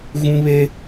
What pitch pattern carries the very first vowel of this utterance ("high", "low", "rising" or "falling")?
high